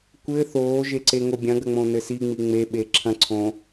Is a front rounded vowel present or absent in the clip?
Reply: absent